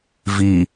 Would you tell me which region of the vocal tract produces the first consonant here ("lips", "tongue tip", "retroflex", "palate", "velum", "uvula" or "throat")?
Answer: lips